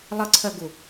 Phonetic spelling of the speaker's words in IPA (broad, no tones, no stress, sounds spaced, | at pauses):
lˠ ə ǀʰ ɜ ɡ u